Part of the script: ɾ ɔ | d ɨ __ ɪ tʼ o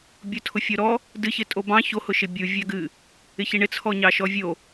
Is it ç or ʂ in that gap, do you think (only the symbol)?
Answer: ç